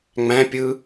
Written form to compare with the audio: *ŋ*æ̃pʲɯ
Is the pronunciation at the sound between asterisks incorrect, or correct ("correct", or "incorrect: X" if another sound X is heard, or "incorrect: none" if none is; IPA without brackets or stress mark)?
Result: incorrect: ŋ͡m